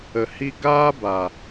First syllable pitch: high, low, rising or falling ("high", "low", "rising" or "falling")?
low